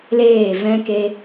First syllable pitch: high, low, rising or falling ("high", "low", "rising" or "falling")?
falling